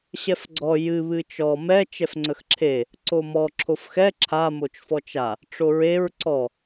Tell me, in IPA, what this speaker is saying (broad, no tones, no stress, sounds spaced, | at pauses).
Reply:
ɕ ɛ f ɡ͡ǀ ɔ j ɨ β ɨ t͡ʃ ɔ m ɛ t͡ʃ ɛ f ŋ͡ǀ ə x ǁʰ e | ǀ o m ɔ ǁʰ o f x ɛ ǁʰ a m o t͡ʃ f ɔ t͡ʃ a | ʈ͡ʂ o ɹ e ɹ ǀ ɔ